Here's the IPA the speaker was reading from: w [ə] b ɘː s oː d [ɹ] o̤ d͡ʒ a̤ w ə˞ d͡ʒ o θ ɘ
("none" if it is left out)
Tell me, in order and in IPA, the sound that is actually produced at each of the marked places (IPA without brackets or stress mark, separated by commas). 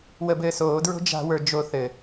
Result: ə, ɹ